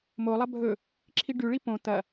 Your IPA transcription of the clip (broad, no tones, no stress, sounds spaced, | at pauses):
m o lˠ ɐ bʱ ɵ | ǁʰ i ɖ ʉ ɭ i p õ t̪ ɐ